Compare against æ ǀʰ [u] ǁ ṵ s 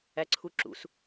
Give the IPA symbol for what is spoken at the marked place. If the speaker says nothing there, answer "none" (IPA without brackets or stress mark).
u